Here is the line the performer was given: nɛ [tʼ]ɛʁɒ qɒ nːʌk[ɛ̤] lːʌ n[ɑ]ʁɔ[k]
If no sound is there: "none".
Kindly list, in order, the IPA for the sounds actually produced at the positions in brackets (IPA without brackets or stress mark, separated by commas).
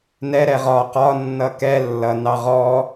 ɾ, ɛ, ɑ, none